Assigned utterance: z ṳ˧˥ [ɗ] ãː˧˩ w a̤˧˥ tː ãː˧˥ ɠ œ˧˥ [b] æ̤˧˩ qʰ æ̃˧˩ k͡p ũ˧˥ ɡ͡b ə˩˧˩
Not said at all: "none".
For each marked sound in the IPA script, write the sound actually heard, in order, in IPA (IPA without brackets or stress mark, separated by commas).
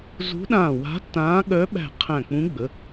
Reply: ɗ, ɓ